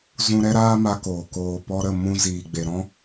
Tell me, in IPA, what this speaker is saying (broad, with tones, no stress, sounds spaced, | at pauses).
z ũ˦ ɾ ɛ˦ ɾ aː˦ m a˧ k oː˨ k oː˨ p ɔ˧ ɾ ə˦˨ m ũ˧ z iː˨ ɡ͡b e˨ ɾ ɔ̃˦